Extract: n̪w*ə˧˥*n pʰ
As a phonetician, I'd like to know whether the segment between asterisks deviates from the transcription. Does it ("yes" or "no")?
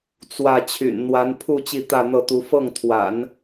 yes